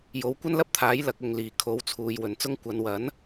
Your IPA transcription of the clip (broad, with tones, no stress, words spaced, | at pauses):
jo˨˥wkʷɐ˥nlɐ˥p̚t̪ʰaː˨˥j lɐ˧k̚ʊ˨ŋ liː˨˩ kʰo˨˥wt͡sʰuː˨j wɵ˨nt͡sʊ˥ŋ kʷɐ˨˧nwɐ˨˥n